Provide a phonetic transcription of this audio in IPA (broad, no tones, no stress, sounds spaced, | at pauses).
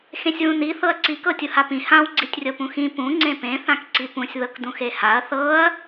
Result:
x ẽ sʲ w ũ n i θ ɤ ɐ̯ ǀ i k ɤ tʲ u h a p ĩ h ã w ɡ͡ǀ i tʲ rʲ ɤ p ũ x ĩ p ũ ŋ͡ǀ ẽ p ẽ θ ã k ǀ i p ũ sʲ ð ɤ k d ũ x e h a ɐ̯ θ ɤ ɐ̯